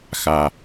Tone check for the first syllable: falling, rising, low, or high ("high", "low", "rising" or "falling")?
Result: low